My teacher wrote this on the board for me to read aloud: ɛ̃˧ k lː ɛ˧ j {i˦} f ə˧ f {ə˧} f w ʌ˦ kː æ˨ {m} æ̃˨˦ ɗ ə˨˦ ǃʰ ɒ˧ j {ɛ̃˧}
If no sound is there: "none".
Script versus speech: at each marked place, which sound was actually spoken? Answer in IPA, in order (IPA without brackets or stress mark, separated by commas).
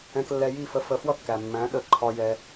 i˦˨, ə˧, mː, ɛ˧